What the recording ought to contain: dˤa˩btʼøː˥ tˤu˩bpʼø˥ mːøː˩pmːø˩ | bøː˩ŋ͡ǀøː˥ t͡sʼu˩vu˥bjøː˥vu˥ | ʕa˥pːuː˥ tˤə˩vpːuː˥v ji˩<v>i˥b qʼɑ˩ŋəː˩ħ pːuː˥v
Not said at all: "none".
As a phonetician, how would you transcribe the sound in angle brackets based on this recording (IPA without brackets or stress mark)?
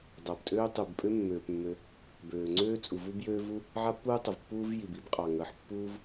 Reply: b